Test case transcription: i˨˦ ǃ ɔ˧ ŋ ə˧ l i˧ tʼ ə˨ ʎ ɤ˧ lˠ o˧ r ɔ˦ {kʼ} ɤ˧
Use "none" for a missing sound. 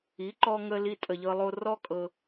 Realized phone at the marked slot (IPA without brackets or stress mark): kʼ